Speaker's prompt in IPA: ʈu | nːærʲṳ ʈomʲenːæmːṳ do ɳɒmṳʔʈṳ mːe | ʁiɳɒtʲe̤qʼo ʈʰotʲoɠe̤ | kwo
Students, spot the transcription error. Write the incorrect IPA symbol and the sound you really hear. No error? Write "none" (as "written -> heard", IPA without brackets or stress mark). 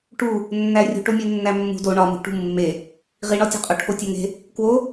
ɠ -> ŋ